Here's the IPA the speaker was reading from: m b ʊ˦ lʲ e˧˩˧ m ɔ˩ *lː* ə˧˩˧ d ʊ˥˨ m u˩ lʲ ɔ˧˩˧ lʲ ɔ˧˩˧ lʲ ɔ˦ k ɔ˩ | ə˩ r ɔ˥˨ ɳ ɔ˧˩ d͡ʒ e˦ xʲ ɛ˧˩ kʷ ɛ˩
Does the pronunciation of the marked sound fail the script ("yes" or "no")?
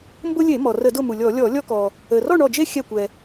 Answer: yes